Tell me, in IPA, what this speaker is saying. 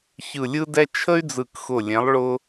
ç ɯ˧˩ lʲ ɯ˥ d ɛ˥ t͡ʃʰ ə˥ y̯ d͡z ɯ˧˩ k x ʊ˧˩ lʲ ɛ̃˨˥ lˠ ɭ ʊ˥

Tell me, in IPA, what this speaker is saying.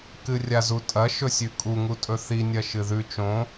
k ɨ rʲ a z u tʼ ɐ ʃ ɵ sʲ ʉ kʼ u ŋ u tʼ ɵ θ i nʲ ɐ ʃ ɨ ð ʉ t͡ʃ õ

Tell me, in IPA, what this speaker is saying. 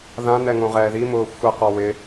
ð ã n ɛ ŋ õ ʁ ɛː ð i m ʊː xʷ ɛ q ɔ w ɪ

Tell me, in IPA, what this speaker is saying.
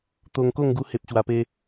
t̪ o˧ ŋ k o˥˧ ŋ ɡ u˧ h e˨ p̚ ɕ w a˧ p e˦

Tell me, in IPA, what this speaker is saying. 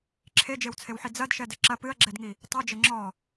ǁʰ e d͡ʒ e w t͡sʰ e w ħ i d͡z ɐ d ʃ ɛ d ɘ ǁ ɐ p ɨ ɐ̯ ɡ͡ǁ ɛ d ŋ i | tˤ ɨ d͡ʒ ɘ ŋ͡ǁ ɔ

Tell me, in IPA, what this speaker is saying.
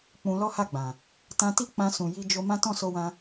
k͡p ũ˧ l ɔ˦ h a˦˨ ɡ͡b ã˨ | t ã˧ t i˦ k͡p ã˧ s ũ˨ j i˧ d͡ʒ o˧ m ã˦ t ɔ̃˦˨ s o˧ w ã˧

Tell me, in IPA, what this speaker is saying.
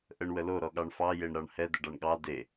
ʔ ə ɳ w ə l o ɾ ɔ ɠ ɑ ɳ f ɑ j e ɳ ɾ ɑ ɳ h ɛ d ə ɖ ɑ ɳ ɠ ɑ d e

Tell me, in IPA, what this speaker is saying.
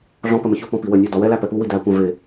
ɮ ɔ̃ p ə m ə ç ʊ p ɔ̃ p i w ə nʲ ɔ d ɒ w ɛ l æ p ɛ p u w i d æ kʷ æ̃ v ɪ

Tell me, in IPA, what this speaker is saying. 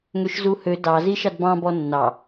ŋ ø ʃ z u h ø d ɑ z i ʃ ɑ d b ɑ̃ b ɔ nː ɑ

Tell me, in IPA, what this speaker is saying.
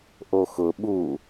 ʔ o x ʊ ɓ u

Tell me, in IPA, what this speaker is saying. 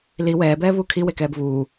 l i w ɛː b ɛː v uː kʰ i w e k ɛː b v uː

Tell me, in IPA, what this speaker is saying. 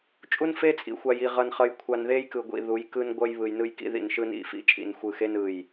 t͡ʃʼ u˦ n f e˦ t͡sʼ ḭ˨ xʷ a˨ j i˨ ʁ ʌ˨ n χ ʌ˨ j kʷʰ a˨ n ð e˦ j k ɯ˨ ɡʷ ḭ˨ ð u˨˦ j k ɯ˦ n ɡʷ ʌ˦ j β ɯ˨ j n ɯ˦ j k ḭ˦ ð ḭ˨ n ʃ ɯ˦ n ḭ˦˨ f ḭ˦ t͡ʃʼ ḭ˨ n xʷ ɯ˨ x e˦ n ɯ˦˨ j

